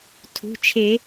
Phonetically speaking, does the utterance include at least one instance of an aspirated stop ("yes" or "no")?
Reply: yes